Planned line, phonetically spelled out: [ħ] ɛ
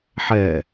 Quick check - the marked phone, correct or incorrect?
correct